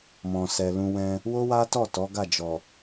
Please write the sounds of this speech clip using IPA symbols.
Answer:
m ɔ̃˨ s ɛ˨ l ũ˧ w ɛ̃˧ | w o˦ w a˦ t ɔ˦˨ t ɔ˨˦ ɡ a˦˨ d͡ʒ ɔ˨

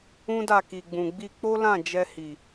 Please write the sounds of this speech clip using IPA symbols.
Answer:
ũ˦ d a˦˨ k i˨ ɡ͡b ũ˨ ɡ͡b i˧ k͡p o˦ l ã˦˨ d͡ʒ ɛ˧ h i˨

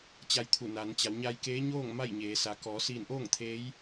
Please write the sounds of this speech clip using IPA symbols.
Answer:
t͡ɕ a˧ j t̪ʰ u˧˩ n a˩˧ n t͡ɕ a˩˧ w ɲ a˧ j k eː˧˥ ɲ oː˥˨ ŋ m a˥˨ j ɲ eː˩˧ s a˩˧ k ɔː˩˧ s iː˧˩ n ʔ oː˥˨ ŋ t̪ʰ eː˧˥ j

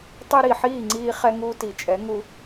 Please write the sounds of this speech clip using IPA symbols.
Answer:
tˤ e˧ ɾ i˨ ħ iː˦˨ ŋ͡ǀ iː˧ χ ɛ˧ ŋ uː˧ t i˨ t͡ʃʼ ɛ˨˦ ŋ u˧

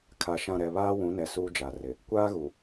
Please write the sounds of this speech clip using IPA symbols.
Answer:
kʰ a˨ ʃ ã˦˨ ɾ ɛ˨ β aː˦ w ũ˨˦ n ɛ˨ s uː˦ d͡ʒ a˨ r ɪ˨ | kʷ aː˦ ɣ u˨

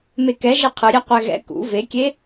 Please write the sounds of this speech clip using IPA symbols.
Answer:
m e k ɛ ʒ e qʰ ɯ ɾʲ ɛ qʷ ɛ ɣ ɛ̰ k ṵ v e kʲ e

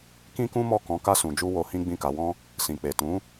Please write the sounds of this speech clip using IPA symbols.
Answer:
k ĩ˦ k ũ˦ m ɔ˦˨ k ɔ̃˨˦ k a˧ s ũ˨ d͡ʒ u˧ w o˧ h ĩ˦ ɡ͡b ĩ˦˨ k a˨˦ w ɔ̃˦ | s ĩ˨ k͡p e˨ t ũ˨˦

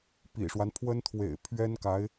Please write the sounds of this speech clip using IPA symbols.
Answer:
p ḭ˨˩ ʂ w a˦ n pʰ w ə˥ n t̪ʰ w ḛ˨˩ ɪ̯ pʰ ɥ ɛ˥ n k a˧˥ ɪ̯

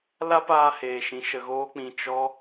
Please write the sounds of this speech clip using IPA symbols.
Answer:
l a˦ p aː˧ h eː˨ ʃ ĩ˨ ʃ ə˧ ɣ oː˦ k͡p ĩ˧ t͡ʃ ɔ˦

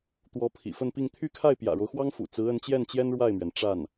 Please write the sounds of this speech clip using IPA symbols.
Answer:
t̪ w ɔ˧˥ pʰ ḭ˨˩ f ə˥˧ n p i˥˧ ŋ t̪ʰ y˥˧ kʰ a˥˩ ɪ̯ p j ä̰˨˩ ɻ o˦ ʊ̯ x w ɑ˥ ŋ f ṵ˨˩ t͡s ɹ̩˧˥ ə˧˥ n t͡ɕ j ɛ˥˩ n t͡ɕ j ɛ˥ n ɻ w a˥˩ ɪ̯ m ɥ ɛ˩ n ʈ͡ʂ a˥˩ n

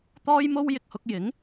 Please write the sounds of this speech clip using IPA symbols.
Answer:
t̪ ɔː˥ j m o˥ w j ɪ˨ k̚ h ʊ˧ k̚ j ɪ˨˥ ŋ

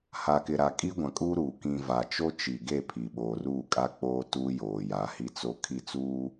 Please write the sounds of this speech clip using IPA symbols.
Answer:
h a˨ k ɪ˨ ɾ a˨ kʼ i˦ ɡʷ ã˨ kʼ uː˦ ɾ uː˨ k ĩ˨ v a˨ t͡ʃ o˦ t͡ʃ i˨ ɡ e˦˨ pʰ i˨ ɓ oː˨ r uː˦˨ kʼ a˦ k͡p oː˦ t uː˦ j oː˨ j a˨˦ h i˦ t͡s o˦ kʰ i˦˨ t͡s uː˦

